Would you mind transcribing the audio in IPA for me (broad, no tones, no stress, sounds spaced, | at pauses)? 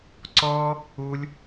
ǀ ɔ | u lʲ